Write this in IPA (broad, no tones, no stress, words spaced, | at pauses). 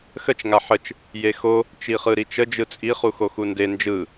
xət͡ʃ ŋaħət͡ʃ | jexo | t͡ʃiχɯɾit͡ʃə d͡ʒɯt͡sʼi χuxoxunde nd͡ʒɯ